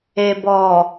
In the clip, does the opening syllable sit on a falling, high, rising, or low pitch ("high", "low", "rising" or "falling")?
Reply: low